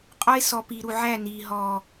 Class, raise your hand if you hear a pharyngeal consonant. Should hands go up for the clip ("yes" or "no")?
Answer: yes